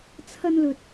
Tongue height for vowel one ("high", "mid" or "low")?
low